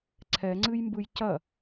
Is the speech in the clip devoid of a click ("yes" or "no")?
no